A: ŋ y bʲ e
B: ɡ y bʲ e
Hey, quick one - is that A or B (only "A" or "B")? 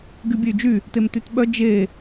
B